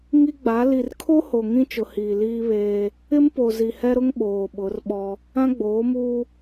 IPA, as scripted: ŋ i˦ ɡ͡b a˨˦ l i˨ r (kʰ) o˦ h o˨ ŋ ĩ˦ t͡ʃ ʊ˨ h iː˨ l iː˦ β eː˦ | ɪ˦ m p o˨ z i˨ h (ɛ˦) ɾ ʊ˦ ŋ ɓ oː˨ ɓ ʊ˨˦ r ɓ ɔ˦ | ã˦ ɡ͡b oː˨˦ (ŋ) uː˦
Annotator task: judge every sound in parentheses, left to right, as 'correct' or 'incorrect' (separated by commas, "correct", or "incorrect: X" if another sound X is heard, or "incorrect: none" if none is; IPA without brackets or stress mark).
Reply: correct, correct, incorrect: m